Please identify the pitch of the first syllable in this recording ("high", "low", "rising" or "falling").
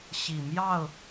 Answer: low